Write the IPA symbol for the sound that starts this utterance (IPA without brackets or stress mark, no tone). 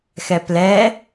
x